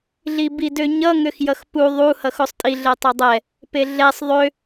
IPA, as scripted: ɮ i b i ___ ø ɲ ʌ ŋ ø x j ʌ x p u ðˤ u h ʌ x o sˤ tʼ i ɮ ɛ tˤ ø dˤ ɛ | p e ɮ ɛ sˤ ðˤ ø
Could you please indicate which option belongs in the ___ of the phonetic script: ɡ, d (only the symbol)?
d